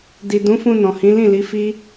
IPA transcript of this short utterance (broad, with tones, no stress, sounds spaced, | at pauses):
d i˨ d ũ˨˦ f ũ˧ n ɔ̃˨ h ĩ˨˦ l ĩ˦˨ l i˨˦ f i˦